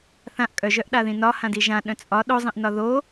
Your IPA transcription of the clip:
θ ã ʔ kʼ œ ʒ œ ʔ ɗ a ð ĩ n ɒ h ã d i ʒ ã ɗ œ̃ t͡sʼ ɒ ɗ o zˤ ĩ ʔ n ɒ ð o

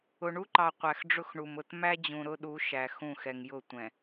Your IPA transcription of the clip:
ʊ˨ ɳ u˦ ǃ ɑ˨ qʷ æ˨ x ɖ͡ʐ ʊ˦ x ɳ u˨ m ʊ˨ t m æ˦ d͡ʑ ũ˨ ɾ ʊ˦ ɗ u˨˦ ʃ æ˨ x ũ˦˨ x ɛ˨ ŋ j ʊ˦˨ tʷ ɛ̃˨

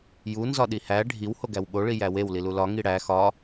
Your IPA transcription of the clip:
j u n z ɒ ɗ i h æ ɖʱ i w h o ɡ æ w ɓ o ɭ i j æ w e w l i l u l ɒ ŋ i ɽ æ x ɒ

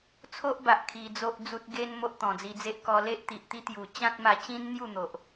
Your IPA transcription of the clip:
t͡sʰ o˦ ʔ b a˨ ʔ kʰ i˧ d͡z o˦ ʔ d͡z u˦ t̚ ɡ e˦ n m o˦ ʔ t̪ ɔ̃˨˩ d͡z i˧ d͡z e˦ ʔ k ɔ˧ l e˦ ʔ t̪ i˨ ʔ t̪ i˦ t̪ j u˨˩ t͡ɕ ã˦ t̚ m a˧ t͡ɕ ĩ˦ n n̪ j u˥˧ n̪ o˨ ʔ

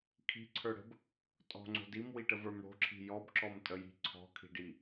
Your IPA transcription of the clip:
kʰ i̤ ǀʰ ə˞ ɽ ə̤ b | tʼ ɔ̤ ŋ͡ǀ o̤ d i m w i ʈ ə v ə˞ m ɽ o̤ ǁʰ i̤ j ɔ b ǁ ɔ m tʼ ə j i̤ ǀʰ ɔ̤ kʰ i̤ ɖ i

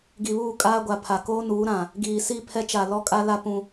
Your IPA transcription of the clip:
ɡ i˨ β uː˦˨ kʼ aː˦ ɡʷ a˨ pʰ a˨ k oː˦ n uː˨˦ ɾ ã˨ | ɡ iː˨ s i˦˨ pʰ ɛ˦ t͡ʃ a˨ l ɔ˦ kʼ a˦ l a˦ p ũ˦

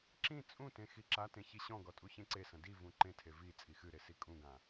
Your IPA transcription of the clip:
ǁ ĩ t͡sʼ ũ t ẽ x i ǁ a t ẽ ç i ɕ ɔ̃ ɡ ɔ tʼ u ç ẽ ǀ e s ɐ̃ d i v ũ ǃ ẽ tʰ e v i t͡sʼ i x ɨ ɾ e s i kʼ ũ ɡ ã

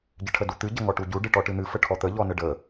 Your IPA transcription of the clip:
ɟ ɨ ʈʰ ə d u t̪ ɨ ɟ ə ŋ ɔ ʈ u ɟ u ɖ ɨ ʈ ɔ ʈ ɨ n̪ ɨ f ə ʈʰ ɔ t̪ ə ʎ ɔ n ə ɖ ə

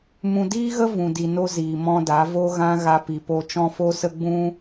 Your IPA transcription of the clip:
m ũ˨ d iː˦ ɣ ə˦ v ũ˨ d i˨ n o˦ z iː˨ m ɔ̃˧ d a˨˦ v o˦ ɣ ã˦ ɣ a˧ p i˨ p o˧ t͡ʃ ɔ̃˦ f o˦ s ə˦ ɡ͡b ũ˦

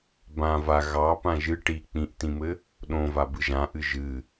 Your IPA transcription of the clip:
b ã v a ɣ ɑ p ã ʒ ɨ ʈ i k͡p ĩ ʔ t ĩ m ɘ | ɗ õ v a b ɨ ʒ ã ʔ ɨ ʒ ɨ

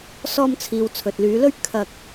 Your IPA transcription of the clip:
s ɔː˧ m t͡sʰ iː˨ w t͡sʰ ɵ˨ t̚ l yː˨˧ l ɵ˥ ɥ kʰ ɐ˧ k̚

